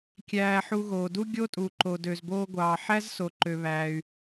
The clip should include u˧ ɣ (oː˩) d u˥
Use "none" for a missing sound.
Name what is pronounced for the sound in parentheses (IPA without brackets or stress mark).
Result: oː˩